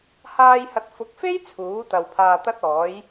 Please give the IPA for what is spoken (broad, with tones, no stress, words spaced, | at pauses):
haː˧jhɐ˨t̚fʊ˨˥k̚fe˥j t͡sʰuː˨˥t̪ɐ˨wpʰaː˧ t̪ɐ˥t̚ɔː˨˥j